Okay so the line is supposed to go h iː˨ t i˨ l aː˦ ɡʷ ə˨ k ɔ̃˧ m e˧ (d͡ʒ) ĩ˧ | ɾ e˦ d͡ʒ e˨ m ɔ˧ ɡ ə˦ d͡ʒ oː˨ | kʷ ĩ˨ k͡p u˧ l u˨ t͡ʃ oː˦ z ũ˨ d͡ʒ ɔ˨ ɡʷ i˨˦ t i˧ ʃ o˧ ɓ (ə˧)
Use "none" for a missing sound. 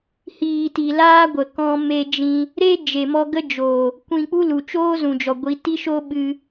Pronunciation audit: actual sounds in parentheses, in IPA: d͡ʒ, ɨ˧

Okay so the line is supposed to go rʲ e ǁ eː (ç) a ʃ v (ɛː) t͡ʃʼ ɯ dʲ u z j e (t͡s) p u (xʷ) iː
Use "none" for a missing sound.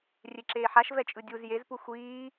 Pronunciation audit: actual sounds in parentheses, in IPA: ħ, ɛ, z, xʷ

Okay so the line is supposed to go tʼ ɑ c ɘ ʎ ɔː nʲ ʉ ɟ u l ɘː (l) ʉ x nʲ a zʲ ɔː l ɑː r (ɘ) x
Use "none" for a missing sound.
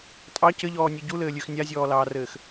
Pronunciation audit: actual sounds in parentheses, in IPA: lʲ, ɘː

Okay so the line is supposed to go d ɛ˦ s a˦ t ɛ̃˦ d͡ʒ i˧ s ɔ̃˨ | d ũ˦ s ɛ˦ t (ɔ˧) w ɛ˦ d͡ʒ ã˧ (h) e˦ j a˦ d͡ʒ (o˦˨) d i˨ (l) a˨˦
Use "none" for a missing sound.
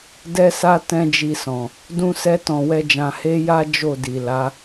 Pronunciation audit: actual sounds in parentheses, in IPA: ɔ̃˧, h, o˦˨, l

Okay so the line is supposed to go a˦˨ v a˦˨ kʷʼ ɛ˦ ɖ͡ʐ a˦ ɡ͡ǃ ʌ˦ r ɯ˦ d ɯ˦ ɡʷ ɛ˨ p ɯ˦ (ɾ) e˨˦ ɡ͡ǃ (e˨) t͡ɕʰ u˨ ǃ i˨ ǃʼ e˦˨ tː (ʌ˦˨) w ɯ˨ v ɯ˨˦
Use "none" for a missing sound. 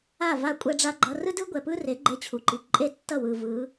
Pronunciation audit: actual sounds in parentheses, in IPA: r, e˦, ʌ˦˨

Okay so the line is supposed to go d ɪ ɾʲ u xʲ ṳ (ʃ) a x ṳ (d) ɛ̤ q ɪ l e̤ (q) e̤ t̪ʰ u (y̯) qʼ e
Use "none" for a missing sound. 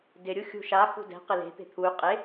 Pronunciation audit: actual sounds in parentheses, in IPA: ʃ, d, t̪, y̯

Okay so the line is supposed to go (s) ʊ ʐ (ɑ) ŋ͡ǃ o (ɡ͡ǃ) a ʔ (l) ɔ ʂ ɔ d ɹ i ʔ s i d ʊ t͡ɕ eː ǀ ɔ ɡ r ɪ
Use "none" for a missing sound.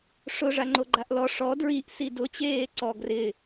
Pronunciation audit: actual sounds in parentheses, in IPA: ʂ, a, ɡ͡ǃ, l

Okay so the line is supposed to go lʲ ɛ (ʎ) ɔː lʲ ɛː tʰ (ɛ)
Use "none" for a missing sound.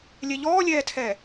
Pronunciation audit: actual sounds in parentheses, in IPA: ʎ, ɛː

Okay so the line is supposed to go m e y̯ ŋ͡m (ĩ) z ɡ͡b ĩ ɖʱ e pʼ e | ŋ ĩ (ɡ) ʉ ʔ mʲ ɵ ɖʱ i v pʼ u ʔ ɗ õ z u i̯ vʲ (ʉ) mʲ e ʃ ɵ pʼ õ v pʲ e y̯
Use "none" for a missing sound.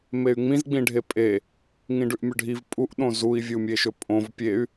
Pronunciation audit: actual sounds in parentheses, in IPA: ĩ, ɖ, u

